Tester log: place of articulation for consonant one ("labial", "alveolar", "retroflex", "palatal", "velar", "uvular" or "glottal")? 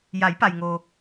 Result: palatal